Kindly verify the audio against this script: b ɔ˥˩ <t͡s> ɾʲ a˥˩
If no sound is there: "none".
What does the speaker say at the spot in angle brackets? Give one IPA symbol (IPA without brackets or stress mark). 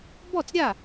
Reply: t͡s